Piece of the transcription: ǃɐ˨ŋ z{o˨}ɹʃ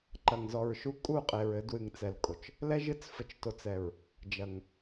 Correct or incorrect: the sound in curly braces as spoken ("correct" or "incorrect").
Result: incorrect